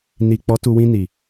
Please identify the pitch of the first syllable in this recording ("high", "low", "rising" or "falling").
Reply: low